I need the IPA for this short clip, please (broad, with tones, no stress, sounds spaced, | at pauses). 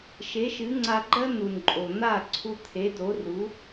ʃ e˩˥ ʃ ɨ˩˥ ŋ͡ǀ a˧ ɡ͡ǃ ɜ˥ n̪ u˩ n ǃʼ o˩ n̪ a˥˩ ǀʰ u˧ t̪ʰ e˩˥ d o˩˥ r u˩˥